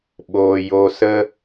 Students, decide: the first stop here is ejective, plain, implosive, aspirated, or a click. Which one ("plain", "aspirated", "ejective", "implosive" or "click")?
implosive